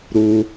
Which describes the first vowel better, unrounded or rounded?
rounded